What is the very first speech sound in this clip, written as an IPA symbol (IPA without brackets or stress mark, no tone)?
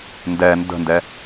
n